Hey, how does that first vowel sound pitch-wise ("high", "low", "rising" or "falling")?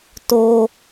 high